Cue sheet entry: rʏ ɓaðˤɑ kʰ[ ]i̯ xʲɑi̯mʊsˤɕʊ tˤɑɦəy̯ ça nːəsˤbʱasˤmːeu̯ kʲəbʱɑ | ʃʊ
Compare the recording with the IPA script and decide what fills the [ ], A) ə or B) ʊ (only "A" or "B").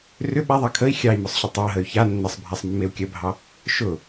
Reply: A